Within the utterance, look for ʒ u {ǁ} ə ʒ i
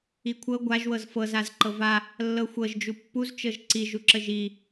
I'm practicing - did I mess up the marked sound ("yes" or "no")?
no